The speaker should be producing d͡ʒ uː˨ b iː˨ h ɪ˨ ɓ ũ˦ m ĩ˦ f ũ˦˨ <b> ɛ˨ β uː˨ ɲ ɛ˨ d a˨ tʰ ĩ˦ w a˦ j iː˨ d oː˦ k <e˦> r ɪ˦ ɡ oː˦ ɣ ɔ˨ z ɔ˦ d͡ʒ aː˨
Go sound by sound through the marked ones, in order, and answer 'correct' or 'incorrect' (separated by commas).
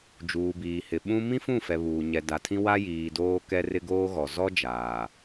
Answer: incorrect, incorrect